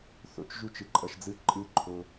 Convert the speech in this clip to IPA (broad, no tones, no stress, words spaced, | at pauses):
θo̰t͡ʃ ʒut͡ʃɯǃʼʌʃd͡zɯ ǃʼɯǃʰo